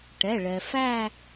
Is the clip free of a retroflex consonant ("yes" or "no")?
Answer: no